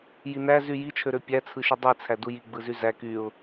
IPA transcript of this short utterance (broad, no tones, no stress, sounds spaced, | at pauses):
j i n æ z y j i t͡ʃʰ ø ɾ ø pʲ æ t͡sʰ ɯ ʃ y dˤ i t͡sʰ æ d u j i ɡ͡b ɯ z y z æ k y ʊ̯